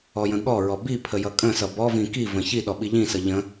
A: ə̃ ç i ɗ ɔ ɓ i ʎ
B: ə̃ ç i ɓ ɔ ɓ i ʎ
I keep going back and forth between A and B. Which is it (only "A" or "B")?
A